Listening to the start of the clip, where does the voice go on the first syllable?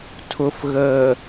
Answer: low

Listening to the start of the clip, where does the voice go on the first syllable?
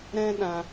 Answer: high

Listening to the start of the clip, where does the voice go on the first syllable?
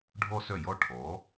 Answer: high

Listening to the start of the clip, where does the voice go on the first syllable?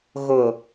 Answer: low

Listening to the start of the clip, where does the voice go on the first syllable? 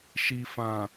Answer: low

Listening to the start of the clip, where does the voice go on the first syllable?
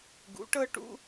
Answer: rising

